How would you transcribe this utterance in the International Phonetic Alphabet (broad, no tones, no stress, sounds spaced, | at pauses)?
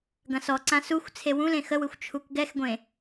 ɡ ɐ̃ s ɔ ǀ ã s u xʷ t͡sʰ e w ũ l ẽ x ə w ɯ xʷ t͡ʃʰ u k ɡ ɛ x ɡʷ ẽ